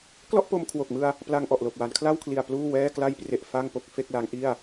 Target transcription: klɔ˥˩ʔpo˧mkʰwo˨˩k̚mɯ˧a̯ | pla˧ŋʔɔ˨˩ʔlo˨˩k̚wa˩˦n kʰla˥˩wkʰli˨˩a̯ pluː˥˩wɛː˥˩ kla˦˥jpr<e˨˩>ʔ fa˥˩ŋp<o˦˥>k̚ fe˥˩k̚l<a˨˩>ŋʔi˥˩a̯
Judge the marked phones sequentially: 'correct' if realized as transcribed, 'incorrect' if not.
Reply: correct, correct, incorrect: a˦˥

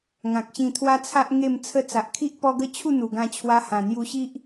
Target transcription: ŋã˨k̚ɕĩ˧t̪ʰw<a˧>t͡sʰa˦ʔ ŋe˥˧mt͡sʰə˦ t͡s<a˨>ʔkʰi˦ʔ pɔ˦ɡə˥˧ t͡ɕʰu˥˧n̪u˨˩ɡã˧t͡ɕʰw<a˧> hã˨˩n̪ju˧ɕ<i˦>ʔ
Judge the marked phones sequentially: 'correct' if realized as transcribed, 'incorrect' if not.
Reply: incorrect: a˦, correct, correct, correct

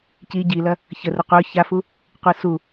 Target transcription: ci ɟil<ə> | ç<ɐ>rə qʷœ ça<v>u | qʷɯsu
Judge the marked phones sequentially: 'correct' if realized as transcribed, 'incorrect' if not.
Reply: incorrect: ɐ, incorrect: ə, incorrect: f

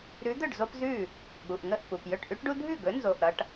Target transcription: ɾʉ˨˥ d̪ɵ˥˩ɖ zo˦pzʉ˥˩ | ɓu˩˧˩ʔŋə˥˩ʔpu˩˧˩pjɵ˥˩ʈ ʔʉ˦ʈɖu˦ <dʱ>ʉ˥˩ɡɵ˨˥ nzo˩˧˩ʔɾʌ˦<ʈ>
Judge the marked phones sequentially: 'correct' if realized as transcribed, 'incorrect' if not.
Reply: correct, correct

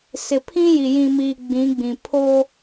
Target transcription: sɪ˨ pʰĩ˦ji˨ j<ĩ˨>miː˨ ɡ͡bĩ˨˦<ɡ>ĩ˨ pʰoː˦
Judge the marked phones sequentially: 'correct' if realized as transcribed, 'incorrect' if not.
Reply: correct, incorrect: ɡ͡b

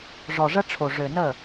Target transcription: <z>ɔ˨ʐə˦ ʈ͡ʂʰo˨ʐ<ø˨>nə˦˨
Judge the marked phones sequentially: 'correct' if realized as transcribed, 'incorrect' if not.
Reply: incorrect: ʐ, correct

